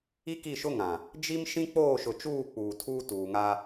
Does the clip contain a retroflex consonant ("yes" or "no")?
no